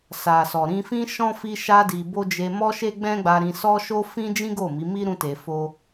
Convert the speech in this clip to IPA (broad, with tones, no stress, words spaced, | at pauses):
sa˨sɔ˨ ɾĩ˧fĩ˦ʃɔ̃˦ fi˦ʃa˦di˧ bo˦ d͡ʒe˧mɔ˦ʃe˦ ɡ͡bɛ̃˦ɡ͡ba˧ɾĩ˧ sɔ˦ʃo˦ fĩ˦d͡ʒĩ˦ɡo˦˨ mi˨˦mi˦ ɾũ˦te˧fo˦